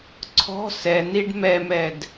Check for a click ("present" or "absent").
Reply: present